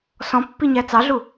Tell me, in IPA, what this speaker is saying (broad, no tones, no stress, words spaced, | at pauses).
sɔ̃pːiɲæ t͡sɑɮu